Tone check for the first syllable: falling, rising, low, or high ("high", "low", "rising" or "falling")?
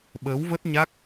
rising